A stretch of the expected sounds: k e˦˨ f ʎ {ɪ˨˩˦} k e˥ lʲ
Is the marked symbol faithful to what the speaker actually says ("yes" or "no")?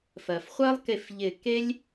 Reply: no